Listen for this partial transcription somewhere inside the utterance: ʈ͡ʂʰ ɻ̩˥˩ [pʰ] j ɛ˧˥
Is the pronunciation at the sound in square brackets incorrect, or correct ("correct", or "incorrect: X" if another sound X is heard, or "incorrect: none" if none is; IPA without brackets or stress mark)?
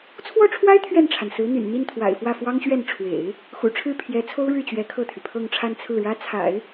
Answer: correct